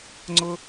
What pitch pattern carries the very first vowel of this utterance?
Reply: high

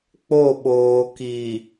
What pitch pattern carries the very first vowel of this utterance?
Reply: falling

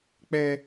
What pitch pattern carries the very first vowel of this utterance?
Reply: high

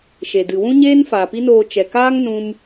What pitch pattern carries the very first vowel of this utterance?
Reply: low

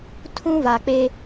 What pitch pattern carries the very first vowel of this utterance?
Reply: high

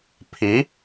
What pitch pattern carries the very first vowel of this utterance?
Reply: rising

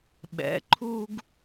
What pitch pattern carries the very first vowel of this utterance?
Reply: rising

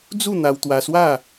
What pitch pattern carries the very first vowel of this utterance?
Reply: falling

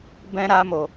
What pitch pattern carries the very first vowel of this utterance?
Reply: high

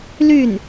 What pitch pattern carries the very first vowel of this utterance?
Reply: falling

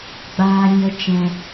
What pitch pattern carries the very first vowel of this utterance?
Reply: high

